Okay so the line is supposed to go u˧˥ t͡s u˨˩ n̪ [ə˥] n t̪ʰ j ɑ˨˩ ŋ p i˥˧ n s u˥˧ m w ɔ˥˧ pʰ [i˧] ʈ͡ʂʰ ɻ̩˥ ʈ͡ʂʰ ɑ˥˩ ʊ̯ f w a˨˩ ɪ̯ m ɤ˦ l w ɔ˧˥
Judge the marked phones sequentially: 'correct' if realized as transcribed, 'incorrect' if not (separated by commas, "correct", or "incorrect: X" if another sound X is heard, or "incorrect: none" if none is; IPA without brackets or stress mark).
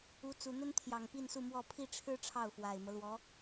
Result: correct, incorrect: i˥˩